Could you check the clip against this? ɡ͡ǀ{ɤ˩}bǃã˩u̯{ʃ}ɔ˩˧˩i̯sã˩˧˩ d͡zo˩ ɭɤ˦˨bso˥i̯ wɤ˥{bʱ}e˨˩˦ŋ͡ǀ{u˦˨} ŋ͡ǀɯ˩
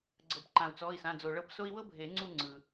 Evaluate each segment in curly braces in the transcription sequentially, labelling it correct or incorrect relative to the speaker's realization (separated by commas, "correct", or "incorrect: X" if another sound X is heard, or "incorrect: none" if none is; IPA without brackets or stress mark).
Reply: correct, incorrect: t͡s, correct, correct